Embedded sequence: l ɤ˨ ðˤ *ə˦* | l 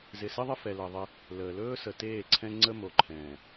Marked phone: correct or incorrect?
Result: incorrect